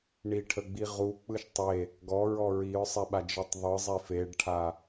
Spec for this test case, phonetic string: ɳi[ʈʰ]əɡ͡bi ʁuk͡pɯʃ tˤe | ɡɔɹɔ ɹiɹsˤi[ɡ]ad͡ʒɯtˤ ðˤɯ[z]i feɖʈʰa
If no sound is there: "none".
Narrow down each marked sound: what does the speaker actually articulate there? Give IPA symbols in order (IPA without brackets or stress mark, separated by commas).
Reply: ʈʰ, ɓ, zˤ